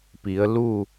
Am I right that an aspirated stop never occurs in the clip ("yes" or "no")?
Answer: yes